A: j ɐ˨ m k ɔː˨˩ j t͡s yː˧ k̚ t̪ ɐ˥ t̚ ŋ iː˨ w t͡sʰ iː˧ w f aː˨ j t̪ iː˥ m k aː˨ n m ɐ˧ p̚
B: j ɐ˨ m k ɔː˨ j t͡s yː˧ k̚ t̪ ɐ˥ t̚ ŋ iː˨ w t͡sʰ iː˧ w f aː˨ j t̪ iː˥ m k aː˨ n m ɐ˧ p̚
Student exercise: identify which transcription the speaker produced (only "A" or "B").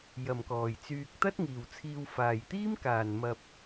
B